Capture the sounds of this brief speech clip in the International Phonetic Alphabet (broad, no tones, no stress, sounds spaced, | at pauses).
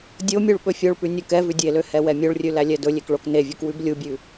dʲ o mʲ u ɭ ɓ ɵ fʲ o ɭ p ʉ nʲ u k ɛ v ʉ dʲ e l ø h ɛ w ɛ mʲ o ɭ rʲ ʉ l æ lʲ ɛ d ɵ lʲ e k ɭ o k n e vʲ u k w ʉ b lʲ u bʲ ʉ